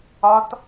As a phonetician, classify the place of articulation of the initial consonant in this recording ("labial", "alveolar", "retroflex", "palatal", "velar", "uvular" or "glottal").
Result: alveolar